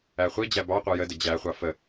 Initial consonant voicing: voiceless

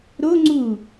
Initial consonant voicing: voiced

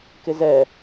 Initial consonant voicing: voiceless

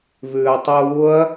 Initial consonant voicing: voiced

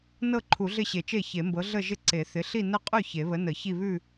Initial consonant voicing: voiced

